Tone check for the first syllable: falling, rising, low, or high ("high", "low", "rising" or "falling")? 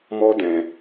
high